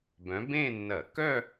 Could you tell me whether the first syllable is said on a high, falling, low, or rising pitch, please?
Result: rising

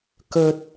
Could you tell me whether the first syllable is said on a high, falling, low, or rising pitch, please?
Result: low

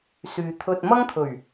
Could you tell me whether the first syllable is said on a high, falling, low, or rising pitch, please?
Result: low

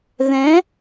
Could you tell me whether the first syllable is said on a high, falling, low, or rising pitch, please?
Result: rising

